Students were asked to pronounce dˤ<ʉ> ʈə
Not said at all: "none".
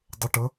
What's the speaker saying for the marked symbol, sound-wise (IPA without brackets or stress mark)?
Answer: ə